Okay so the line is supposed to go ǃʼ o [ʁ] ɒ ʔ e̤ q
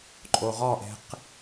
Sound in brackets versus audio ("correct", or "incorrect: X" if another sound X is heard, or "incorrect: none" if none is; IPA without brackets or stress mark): correct